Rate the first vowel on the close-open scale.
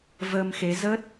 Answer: mid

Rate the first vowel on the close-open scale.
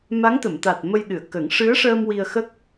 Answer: open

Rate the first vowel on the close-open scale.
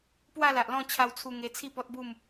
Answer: open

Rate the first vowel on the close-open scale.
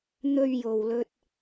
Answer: mid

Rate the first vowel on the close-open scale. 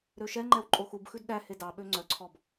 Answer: mid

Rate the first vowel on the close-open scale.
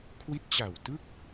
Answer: close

